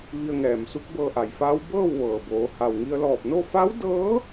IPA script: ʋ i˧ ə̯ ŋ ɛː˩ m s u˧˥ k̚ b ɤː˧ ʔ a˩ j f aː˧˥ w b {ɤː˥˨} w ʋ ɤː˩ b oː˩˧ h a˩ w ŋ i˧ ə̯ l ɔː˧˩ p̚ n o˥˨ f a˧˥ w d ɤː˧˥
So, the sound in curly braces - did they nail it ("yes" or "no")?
yes